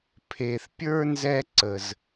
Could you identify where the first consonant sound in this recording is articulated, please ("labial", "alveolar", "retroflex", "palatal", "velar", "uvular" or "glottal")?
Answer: labial